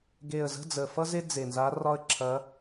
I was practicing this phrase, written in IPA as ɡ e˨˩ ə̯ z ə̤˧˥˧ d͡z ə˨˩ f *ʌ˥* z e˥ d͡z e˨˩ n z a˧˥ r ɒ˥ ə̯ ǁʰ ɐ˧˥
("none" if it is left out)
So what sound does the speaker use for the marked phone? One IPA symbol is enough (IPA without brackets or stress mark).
ʌ˥